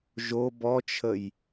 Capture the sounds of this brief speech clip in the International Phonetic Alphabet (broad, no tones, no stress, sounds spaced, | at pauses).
ʒ o b ɔ t͡ʃʰ ə j